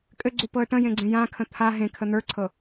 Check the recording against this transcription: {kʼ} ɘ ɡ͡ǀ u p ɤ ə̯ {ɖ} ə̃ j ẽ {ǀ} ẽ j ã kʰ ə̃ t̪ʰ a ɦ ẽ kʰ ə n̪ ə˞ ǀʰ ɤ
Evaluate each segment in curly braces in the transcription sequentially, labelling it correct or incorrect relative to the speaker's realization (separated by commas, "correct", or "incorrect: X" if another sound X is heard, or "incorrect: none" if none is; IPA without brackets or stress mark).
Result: correct, incorrect: ʈ, incorrect: ɡ͡ǀ